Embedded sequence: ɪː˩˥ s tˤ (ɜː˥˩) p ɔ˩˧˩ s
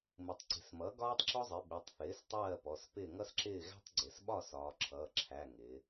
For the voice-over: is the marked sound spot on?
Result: yes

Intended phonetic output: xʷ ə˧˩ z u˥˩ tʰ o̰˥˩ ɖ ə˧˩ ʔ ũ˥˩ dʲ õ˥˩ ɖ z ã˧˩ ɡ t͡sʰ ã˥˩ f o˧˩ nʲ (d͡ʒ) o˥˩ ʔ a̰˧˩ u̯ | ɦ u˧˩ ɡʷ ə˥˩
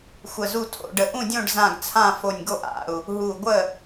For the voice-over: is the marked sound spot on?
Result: no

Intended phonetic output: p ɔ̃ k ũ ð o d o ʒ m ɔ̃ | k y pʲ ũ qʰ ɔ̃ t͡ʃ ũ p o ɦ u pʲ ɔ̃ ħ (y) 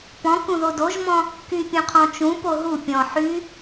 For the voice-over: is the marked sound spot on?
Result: yes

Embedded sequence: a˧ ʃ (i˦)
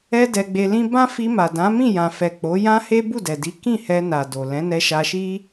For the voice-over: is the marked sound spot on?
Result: yes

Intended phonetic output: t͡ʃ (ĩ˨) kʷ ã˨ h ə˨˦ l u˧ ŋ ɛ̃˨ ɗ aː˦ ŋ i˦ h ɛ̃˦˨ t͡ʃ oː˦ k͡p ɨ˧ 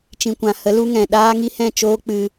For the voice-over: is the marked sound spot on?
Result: yes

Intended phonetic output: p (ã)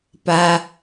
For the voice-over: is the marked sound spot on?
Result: no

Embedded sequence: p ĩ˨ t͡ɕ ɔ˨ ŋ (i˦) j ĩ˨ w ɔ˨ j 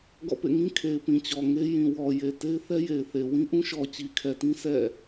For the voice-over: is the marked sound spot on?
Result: no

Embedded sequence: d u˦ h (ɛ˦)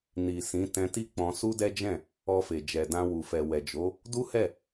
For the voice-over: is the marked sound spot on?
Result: no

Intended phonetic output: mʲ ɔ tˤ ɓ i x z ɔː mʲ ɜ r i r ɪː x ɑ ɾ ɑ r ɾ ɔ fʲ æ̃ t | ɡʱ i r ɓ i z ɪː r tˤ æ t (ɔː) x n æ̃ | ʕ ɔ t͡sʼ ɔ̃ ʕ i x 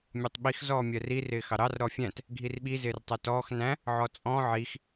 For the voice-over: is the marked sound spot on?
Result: yes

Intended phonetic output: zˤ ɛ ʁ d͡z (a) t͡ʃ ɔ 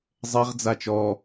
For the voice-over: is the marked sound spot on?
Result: yes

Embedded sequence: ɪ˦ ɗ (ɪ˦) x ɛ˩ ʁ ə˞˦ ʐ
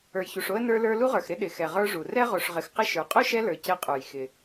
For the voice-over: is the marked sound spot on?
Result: no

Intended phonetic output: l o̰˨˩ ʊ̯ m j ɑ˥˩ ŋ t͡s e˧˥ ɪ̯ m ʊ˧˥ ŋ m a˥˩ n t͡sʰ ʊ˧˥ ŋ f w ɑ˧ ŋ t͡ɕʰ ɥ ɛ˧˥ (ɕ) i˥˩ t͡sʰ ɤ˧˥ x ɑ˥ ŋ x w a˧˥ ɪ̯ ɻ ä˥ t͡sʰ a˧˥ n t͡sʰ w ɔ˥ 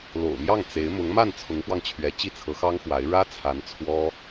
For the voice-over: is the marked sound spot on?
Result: no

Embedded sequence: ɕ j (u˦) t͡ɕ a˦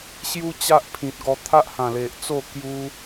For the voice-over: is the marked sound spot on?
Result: yes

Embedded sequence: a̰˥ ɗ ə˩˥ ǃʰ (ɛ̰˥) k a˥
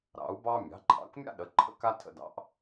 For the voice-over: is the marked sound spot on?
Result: no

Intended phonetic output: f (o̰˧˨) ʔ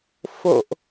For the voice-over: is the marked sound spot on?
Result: yes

